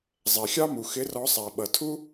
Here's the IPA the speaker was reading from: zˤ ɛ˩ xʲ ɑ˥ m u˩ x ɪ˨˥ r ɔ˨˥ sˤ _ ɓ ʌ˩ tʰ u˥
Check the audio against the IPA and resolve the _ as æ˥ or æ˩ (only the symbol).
æ˩